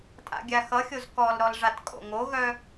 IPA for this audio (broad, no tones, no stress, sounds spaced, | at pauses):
tʼ a̰ ɡʲ a x ʌ xʲ o z k ɔ l ɾ ɔ l ʐ a t kʼ o̰ ŋ o ɣ œ